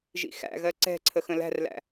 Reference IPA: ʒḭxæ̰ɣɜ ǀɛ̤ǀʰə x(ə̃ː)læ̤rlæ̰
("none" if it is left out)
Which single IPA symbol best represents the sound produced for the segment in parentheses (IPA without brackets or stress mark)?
ə̃